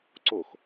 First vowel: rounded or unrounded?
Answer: rounded